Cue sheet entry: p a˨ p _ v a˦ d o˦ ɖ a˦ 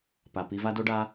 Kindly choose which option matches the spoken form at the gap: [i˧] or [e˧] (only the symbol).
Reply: i˧